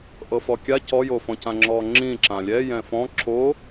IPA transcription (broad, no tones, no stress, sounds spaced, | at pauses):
ʔ ɤ f ɔ kʲ a c ɔ j o f ɔ̃ c ã ŋ͡ǁ ɔ ŋ͡ǁ ĩ ǁ ã lʲ ɛ j ɛ̃ f ɔ̃ ǁ o